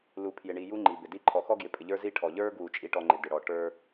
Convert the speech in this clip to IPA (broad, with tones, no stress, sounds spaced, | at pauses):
l u˨ pʰ j ɪ˨ ɳ i˨ j u˦ ŋ͡ǃ i˨ b ɪ˨ d i˦ ǃʰ ɔ˨ x ɔ˦ ɡ j ɪ˨ pʼ ɪ˨ ʎ ə˞˦ z i˦ ʈʰ ɔ˨ ʎ ə˞˦ ɡ w u˨ t͡ʃʼ i˨ ʈ ɔ˨ ŋ͡ǃ ɪ˨ d ɪ˨ ɽ ɔ˨ ʈ ə˞˦